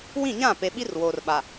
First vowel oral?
no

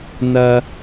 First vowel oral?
yes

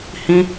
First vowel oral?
no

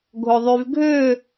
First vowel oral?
yes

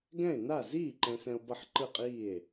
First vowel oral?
no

